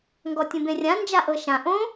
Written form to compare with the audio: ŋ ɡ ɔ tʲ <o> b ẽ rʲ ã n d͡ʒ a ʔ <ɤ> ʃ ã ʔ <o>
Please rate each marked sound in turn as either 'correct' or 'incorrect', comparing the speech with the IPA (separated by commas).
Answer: incorrect, correct, incorrect